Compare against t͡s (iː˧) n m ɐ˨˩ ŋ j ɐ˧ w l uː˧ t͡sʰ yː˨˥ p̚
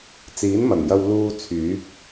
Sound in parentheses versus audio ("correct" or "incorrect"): incorrect